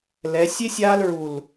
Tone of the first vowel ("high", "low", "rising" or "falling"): rising